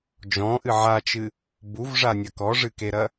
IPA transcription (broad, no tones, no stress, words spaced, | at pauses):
d͡ʒɔ̃ʔɨ ʕat͡ʃɨ | buvʐanʲɐ kɔʐɨkeɾɐ